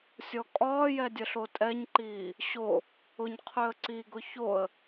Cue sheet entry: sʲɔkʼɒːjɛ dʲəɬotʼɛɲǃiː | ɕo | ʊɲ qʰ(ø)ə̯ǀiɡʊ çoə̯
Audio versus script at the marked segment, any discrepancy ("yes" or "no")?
no